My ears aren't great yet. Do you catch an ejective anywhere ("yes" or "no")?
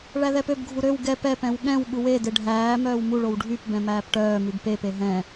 no